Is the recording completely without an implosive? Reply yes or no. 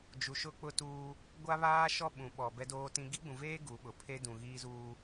no